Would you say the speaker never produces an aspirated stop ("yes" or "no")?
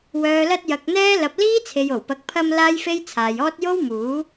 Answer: no